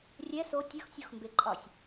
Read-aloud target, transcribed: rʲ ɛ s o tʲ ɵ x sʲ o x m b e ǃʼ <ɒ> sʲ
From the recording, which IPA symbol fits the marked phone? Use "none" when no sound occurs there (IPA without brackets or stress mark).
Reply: ɒ